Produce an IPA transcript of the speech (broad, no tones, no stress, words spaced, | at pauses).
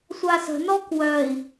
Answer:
sʷasə̤ nɔkwœi̯